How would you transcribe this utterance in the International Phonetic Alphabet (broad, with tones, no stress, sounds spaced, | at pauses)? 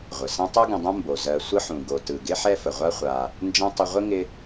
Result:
ʁʷ ɪ˩ s ɐ̃˥ tˤ u˦ ɡ ə̃˨ dˤ ɐ̃˦ m b o˩ z ɜ˨ sʷ ə˦ ħ ũ˩ ɡ o˩ t ɯ˩ ɡ ɪ˦ ħ ɛ˦ f ə˩ ʁʷ a˦ χʷ a˨ | n d͡ʒ ɐ̃˥ tˤ ə˦ ʁʷ ɪ˥ ŋ ɪ˦